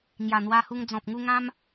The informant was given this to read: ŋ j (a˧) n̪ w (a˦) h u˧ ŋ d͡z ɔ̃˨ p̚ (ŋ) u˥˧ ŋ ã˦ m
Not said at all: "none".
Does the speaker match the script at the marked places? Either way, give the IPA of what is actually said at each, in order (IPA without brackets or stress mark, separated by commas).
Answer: a˨˩, a˧, ŋ